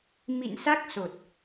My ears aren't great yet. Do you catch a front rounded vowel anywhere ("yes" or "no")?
no